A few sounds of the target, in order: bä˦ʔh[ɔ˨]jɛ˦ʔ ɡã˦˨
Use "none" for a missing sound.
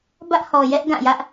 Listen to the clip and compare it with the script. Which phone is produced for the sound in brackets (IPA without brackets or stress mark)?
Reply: ɔ˨